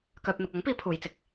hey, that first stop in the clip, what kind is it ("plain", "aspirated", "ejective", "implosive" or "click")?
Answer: plain